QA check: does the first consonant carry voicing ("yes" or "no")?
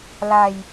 yes